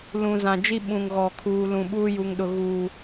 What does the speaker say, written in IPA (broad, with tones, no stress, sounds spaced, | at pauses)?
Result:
l ũ˨ z ã˨ d͡ʒ i˦ ɓ ũ˨ ŋ ɣ ɔ˨ kʰ uː˨ l ũ˨ ɓ uː˦ j u˨ ŋ ɗ ʊ˨ ɣ uː˨